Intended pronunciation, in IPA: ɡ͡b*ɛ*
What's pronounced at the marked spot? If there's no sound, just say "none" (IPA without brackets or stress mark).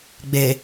e